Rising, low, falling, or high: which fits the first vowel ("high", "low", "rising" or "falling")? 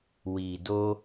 low